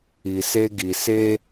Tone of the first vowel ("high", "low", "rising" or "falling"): low